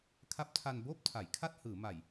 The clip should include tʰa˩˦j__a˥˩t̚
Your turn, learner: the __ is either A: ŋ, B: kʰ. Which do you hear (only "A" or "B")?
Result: B